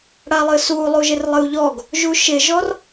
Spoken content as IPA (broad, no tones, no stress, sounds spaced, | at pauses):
ɽ a lˠ ɨ s u lˠ u ʒ ɪ r lˠ ɨ u̯ ʎ ɔ ɡ | ʒ u ʃ ɪ ʒ ɔ r